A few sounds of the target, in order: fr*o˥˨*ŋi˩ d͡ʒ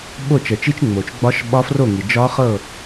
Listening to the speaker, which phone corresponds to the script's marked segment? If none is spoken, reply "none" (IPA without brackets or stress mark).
o˥˨